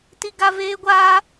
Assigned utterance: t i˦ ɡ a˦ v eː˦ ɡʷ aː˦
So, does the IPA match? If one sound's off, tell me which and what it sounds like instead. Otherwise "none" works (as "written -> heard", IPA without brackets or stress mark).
none